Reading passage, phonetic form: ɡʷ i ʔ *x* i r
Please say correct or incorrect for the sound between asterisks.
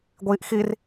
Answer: correct